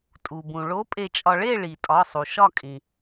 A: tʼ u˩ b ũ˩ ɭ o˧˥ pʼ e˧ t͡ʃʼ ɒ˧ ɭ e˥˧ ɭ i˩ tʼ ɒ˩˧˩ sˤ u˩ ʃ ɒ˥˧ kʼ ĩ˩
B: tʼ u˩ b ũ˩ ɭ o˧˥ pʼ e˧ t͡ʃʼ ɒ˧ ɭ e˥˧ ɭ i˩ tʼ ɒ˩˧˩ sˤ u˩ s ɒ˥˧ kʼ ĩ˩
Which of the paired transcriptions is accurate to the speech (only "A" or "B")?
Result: A